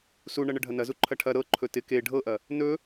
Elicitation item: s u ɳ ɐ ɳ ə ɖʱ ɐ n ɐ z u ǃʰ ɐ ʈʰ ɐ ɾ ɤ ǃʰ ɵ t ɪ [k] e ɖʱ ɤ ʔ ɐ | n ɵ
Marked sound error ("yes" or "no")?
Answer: no